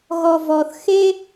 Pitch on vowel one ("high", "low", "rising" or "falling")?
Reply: low